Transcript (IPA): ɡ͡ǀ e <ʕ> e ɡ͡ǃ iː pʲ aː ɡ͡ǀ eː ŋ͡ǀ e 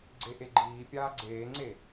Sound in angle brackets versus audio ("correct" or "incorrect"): incorrect